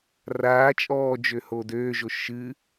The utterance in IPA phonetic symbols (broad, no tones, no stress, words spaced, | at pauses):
raː t͡ʃʼɔːd͡ʒø hoːdøːʒo ʃɨ